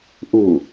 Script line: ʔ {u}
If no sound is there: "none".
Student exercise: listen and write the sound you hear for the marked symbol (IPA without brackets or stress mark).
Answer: u